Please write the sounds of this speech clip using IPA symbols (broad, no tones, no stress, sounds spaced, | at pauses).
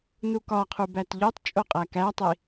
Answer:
n u k ɒ qʰ u b æ t ʎ o tˤ t͡ʃʼ o qʼ æ k æ tˤ i